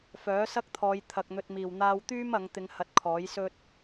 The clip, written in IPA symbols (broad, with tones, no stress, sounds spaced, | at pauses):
f œː˨˥ s ɐ˥ k̚ t̪ʰ ɔː˨˧ j t̪ʰ ɐ˨ k̚ n̪ ɵ˧ t̚ m iː˨˩ w n̪ aː˧ w t̪ yː˥ m ɐ˨˧ ŋ t̪ ɪ˨˧ ŋ h ɐ˨˥ t̚ kʰ ɔː˨˥ j s ɵ˥ t̚